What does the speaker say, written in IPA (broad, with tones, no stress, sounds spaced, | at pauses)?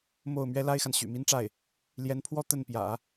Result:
m o˥˩ ʊ̯ m ɥ ɛ˥ l a˥ ɪ̯ x a˨ n ɕ y̰˨˩ m i˥ n ʈ͡ʂ a˥˩ ɪ̯ | l j ɛ˧˥ n pʰ w ɔ˥˧ t̪ ə˥˩ n p j ä̰˨˩˦